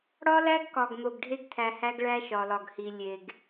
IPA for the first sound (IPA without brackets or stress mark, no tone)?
ɽ